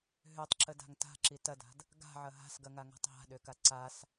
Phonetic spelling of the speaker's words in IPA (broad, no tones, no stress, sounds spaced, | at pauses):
ɦ ø tˤ ǁ ə d a̤ ŋ t a̤ ǁ i t ɐ d a̤ d | ɡ a̤ ʕ ɐ ɦ a̤ s ɡ ɐ ŋ a ŋ a̤ tˤ ɦ a̤ ɗ ø k a ǀ a s